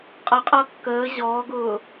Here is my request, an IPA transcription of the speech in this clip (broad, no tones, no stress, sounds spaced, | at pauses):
qʼ ʌ qʼ ʌː kː əː ʑ ɔː ɡ ʊː